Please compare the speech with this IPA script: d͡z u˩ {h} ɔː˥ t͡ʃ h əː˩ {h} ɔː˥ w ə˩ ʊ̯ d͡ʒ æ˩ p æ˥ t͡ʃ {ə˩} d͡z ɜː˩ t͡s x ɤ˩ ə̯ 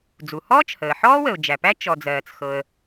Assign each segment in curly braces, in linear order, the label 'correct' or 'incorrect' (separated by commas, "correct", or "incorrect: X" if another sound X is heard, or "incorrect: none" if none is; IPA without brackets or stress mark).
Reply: correct, incorrect: ħ, incorrect: ɔ˩